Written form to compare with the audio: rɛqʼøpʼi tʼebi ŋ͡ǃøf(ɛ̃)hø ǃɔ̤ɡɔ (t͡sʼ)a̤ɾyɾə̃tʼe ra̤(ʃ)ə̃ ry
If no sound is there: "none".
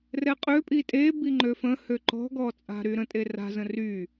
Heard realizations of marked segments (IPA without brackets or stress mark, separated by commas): ə̃, t͡sʼ, z